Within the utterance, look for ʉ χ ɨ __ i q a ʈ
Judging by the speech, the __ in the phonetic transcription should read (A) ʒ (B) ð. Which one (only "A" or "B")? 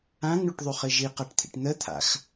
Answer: A